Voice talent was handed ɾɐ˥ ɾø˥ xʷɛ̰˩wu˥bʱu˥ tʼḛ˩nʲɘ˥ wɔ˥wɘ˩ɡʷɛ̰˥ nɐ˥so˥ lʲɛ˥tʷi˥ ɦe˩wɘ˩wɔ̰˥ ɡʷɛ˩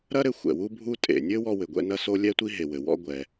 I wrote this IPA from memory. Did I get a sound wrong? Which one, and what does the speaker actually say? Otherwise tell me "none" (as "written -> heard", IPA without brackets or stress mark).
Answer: ø˥ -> ɘ˥